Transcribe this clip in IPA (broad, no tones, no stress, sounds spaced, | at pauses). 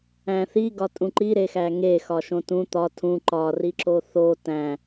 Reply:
æ̃ θ i ɡ ɒ tʼ ũ ǃ i ɾ e x æ ŋ e x ɒ ʃ õ t ũ t̪ ɒ tʰ ũ ǃ ɒ r i ǁ o θ o t æ̃